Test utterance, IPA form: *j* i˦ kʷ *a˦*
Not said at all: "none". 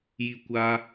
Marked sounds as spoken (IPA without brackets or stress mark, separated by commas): j, a˦